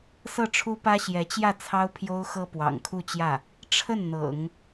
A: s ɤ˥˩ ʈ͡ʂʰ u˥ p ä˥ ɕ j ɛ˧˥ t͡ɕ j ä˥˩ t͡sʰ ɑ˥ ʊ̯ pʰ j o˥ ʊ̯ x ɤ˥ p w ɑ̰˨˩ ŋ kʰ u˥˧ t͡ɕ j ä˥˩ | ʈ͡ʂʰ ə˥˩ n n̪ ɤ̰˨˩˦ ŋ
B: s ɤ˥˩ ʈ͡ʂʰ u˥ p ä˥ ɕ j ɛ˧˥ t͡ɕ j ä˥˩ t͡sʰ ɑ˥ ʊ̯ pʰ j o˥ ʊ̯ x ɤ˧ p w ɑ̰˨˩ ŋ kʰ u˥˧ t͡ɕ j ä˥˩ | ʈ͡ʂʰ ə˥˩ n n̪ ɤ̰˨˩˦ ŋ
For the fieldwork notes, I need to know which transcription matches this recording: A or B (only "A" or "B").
A